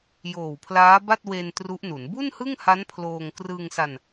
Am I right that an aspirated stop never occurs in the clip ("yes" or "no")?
no